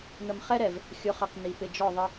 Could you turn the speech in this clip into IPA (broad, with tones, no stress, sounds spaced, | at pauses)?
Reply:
n̪ ə˨ m χ ɛ˦ ɾ ɛ˨ v | xʲ ʊ˨˦ χ ʌ˨ q n̪ i˨ p ɪ˨ d͡ʒ ɔ˦˨ ðˤ ɪ˦